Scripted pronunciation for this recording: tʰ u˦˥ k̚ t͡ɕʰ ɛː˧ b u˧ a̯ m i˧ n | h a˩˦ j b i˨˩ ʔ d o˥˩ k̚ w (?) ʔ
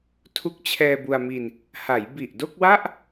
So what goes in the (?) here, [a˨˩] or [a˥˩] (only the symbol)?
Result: a˥˩